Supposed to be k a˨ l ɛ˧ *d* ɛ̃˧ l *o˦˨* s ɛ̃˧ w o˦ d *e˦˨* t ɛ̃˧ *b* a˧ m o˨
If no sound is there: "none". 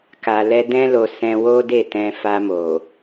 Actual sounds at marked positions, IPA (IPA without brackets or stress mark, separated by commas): d, o˨, e˦˨, f